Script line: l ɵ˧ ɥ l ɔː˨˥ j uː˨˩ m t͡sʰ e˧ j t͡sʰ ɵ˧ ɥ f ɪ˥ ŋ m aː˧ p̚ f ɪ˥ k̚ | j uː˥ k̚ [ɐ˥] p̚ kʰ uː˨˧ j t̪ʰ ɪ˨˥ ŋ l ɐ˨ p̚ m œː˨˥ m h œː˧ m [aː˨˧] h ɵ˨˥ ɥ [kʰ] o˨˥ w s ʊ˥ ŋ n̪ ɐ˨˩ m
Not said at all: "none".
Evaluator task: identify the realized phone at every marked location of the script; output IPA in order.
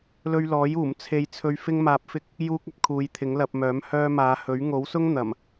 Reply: ɐ˥, aː˨˧, ŋ

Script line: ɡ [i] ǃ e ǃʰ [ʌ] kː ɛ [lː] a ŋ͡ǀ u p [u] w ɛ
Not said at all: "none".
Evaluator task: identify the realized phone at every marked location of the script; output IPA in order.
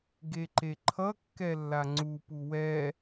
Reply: e, ʌ, lː, u

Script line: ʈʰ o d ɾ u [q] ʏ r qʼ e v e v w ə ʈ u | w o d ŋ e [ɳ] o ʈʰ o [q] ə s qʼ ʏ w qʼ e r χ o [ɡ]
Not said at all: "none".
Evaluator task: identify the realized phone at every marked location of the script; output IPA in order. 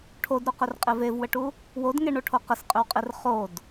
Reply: q, ɳ, q, d

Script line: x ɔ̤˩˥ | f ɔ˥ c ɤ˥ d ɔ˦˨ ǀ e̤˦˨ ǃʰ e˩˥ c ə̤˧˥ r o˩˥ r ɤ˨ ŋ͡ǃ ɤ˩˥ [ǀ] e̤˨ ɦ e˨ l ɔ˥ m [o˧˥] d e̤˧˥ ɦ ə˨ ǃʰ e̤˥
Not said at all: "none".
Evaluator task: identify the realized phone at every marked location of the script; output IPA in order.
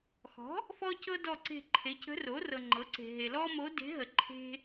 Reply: ǀ, o˧˥

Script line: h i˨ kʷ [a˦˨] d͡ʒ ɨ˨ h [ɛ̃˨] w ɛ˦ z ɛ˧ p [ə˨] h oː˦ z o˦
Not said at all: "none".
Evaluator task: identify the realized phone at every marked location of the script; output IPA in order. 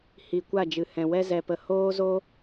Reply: a˦˨, ɛ̃˨, ə˧

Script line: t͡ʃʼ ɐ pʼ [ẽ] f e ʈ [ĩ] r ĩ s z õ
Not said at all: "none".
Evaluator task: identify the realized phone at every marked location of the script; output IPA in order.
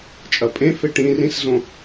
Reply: ẽ, ĩ

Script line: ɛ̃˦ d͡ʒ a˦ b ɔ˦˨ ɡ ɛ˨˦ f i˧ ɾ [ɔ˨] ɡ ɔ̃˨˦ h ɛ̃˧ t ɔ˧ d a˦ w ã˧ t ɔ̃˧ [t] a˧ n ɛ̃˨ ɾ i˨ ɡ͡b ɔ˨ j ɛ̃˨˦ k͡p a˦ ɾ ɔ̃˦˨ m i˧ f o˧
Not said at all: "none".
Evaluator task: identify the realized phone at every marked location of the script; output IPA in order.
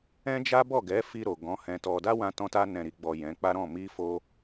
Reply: o˨, t

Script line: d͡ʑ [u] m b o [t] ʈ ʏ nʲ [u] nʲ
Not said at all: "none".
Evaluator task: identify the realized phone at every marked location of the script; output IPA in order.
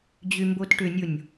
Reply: y, t, o

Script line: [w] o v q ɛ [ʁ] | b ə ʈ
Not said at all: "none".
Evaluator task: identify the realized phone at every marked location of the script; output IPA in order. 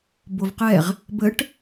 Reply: b, ʁ

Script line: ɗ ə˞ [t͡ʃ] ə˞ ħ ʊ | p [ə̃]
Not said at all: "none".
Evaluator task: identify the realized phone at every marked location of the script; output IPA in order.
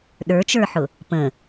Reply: t͡ʃ, ə̃

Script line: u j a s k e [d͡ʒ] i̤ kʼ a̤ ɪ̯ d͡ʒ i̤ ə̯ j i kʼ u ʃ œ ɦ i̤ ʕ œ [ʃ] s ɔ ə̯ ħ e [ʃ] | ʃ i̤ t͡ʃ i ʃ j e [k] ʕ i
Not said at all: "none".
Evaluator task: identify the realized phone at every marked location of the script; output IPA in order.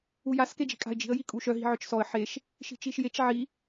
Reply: d͡ʒ, t͡ʃ, ʃ, t͡ʃ

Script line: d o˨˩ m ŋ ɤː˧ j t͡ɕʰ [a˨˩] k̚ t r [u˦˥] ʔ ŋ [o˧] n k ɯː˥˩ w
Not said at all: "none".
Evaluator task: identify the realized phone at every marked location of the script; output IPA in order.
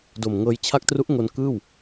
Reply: a˦˥, u˦˥, o˧

